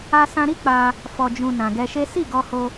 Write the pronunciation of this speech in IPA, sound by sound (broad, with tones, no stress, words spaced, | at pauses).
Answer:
a˧sã˧ɾi˦ k͡pa˧ | fɔ˨d͡ʒũ˨ nã˨ɡɛ˧ʃe˦ si˦˨ɡɔ˧ho˧